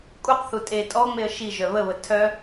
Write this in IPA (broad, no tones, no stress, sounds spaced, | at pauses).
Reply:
kʼ u q θ u tʼ e tʼ ɔ ŋ͡m e ə̯ ʃ i ʒ œ β ə β ə tʰ œ